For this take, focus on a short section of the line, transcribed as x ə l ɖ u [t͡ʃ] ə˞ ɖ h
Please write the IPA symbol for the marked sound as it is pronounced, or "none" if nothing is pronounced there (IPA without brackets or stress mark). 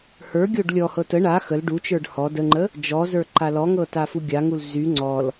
t͡ʃ